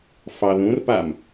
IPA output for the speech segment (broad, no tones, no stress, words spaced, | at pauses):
fɑðũrpam